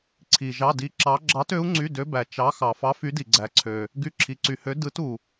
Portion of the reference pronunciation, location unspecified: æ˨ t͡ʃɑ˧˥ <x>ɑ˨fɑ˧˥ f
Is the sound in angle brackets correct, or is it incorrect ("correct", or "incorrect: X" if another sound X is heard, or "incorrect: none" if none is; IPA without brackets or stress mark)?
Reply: correct